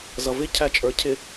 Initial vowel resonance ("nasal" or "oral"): oral